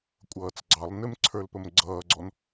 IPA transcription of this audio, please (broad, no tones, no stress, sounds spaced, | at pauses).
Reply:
kʷʼ ʌː t͡s ɡ͡ǀ ɑ lˠ n ɪ m ǀʰ ə˞ l p ə m ɡ͡ǀ ʌː ɡ͡ǀ ɔ n